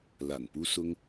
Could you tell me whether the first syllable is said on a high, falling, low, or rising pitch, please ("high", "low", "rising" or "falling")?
low